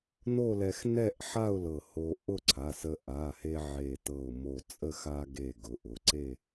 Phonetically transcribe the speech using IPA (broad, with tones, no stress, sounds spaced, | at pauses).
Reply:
n o˥˧ l ɛ˧ x n ɛ˥˧ ʔ ħ a˥˧ ʊ̯ l ɤ˧˩ h o˧ ʔ ʊ˥˧ ǀʰ a˩˧˩ s ə˧ ʔ a˩˧˩ h e˧ ʕ e˧˩ t ɤ˧˩ ʊ̯ m o˧˩ t͡sʼ ə˥˧ x a˧ ɡ e˧˩ ɡ ʊ˩˧˩ ʔ ʊ˩˧˩ ǀ e˥˧